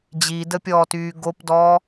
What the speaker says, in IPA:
d͡ʑ i d ə pʲ ɔː t yː ɡ o p d ɔː

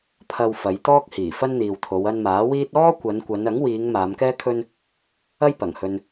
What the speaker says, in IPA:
pʰ ɐ˧ w f ɐ˨˧ j t̪ ɔː˥ k̚ h iː˨˩ f ɐ˥ n n̪ iː˨ w t̪ʰ o˨˧ w ɐ˧ n m aː˨˥ w iː˥ t̚ ɔː˥ kʷ ɐ˨˧ n kʷ ɐ˨˧ n ɐ˨˥ ŋ w iː˨˧ ŋ m aː˨˧ m k ɛː˥ kʰ ɵ˥ n | ɐ˥ j p ɐ˨˩ ŋ h ɵ˧ n

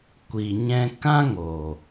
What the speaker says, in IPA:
kʷ i˨ ɲ ɛ̃˧ k ã˦ ŋ oː˨

